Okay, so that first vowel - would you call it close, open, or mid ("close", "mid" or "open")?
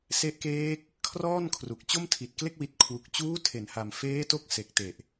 mid